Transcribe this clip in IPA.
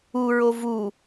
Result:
u ɹ o v u

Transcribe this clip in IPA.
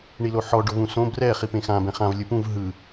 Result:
ɳ i l o ħ ɔ ɖ o v ũ s õ b r ɛ χ i p ẽ x ã b ɛ̃ χ ã v lʲ ɯ p ũ v ɦ ɯ

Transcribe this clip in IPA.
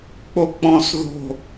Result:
k͡p o k͡p ɔ̃ s ð o̤

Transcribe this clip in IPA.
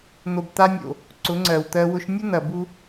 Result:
n̪ o˨ b t̪ a˧ nʲ o̰˨ | ǀ ʊ˨˦ ŋ͡ǀ ɜ˨ w t̪ ɜ˧ w ʊ˦ ʃ nʲ ʊ˦ n̪ ɐ˨ b u˧

